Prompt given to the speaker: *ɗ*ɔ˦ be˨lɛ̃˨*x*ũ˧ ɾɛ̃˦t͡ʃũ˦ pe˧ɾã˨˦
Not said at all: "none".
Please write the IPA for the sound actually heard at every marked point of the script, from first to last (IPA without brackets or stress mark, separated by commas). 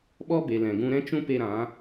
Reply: ɓ, ɡ